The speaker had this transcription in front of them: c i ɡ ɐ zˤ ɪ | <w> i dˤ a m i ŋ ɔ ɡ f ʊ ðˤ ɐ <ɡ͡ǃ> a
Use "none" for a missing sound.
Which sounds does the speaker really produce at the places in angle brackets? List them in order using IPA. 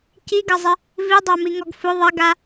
v, ɡ

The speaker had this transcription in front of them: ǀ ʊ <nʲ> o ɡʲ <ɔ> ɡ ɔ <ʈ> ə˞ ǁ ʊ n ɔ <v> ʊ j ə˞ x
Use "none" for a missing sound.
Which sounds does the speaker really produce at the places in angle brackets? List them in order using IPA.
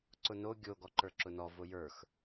n, o, ǃ, v

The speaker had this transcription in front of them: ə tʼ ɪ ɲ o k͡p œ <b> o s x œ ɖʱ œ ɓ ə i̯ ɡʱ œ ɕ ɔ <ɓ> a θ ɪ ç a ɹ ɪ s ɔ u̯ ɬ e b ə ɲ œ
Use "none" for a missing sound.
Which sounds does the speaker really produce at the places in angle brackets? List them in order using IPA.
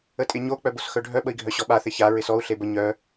b, ɓ

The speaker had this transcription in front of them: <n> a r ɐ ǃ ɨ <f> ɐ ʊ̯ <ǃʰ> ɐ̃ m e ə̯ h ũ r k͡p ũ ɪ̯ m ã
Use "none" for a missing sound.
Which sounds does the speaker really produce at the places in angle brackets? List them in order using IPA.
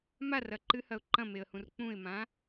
m, h, ǃ

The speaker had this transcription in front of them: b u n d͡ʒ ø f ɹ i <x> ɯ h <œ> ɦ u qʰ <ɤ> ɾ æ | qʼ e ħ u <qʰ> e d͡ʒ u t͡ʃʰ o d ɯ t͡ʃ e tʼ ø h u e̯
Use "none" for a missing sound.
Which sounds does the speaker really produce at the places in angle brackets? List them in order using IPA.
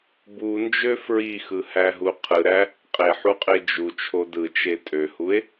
x, æ, ɯ, qʼ

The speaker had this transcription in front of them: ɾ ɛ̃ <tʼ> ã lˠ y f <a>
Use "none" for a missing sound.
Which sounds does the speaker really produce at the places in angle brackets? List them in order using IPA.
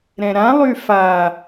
ɾ, a

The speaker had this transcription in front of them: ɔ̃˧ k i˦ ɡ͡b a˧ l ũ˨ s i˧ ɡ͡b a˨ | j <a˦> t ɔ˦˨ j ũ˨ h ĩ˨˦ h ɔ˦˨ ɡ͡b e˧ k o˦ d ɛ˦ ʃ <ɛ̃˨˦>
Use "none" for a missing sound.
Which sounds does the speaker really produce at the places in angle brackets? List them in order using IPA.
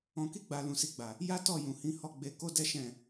a˦, ɛ̃˦˨

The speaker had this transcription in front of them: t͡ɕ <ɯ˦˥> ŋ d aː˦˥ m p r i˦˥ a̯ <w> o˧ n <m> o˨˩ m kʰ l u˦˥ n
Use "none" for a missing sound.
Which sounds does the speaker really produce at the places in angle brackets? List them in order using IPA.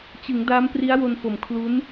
ɯ˩˦, w, f

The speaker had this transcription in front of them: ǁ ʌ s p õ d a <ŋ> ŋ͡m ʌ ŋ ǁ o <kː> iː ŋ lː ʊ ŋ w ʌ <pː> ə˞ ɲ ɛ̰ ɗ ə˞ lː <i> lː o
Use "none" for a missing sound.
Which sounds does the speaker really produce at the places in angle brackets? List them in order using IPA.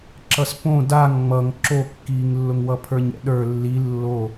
ŋ, kː, pʰ, i

